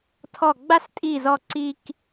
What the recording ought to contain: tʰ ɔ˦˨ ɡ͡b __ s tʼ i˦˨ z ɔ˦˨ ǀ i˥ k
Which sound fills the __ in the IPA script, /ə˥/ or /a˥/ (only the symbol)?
a˥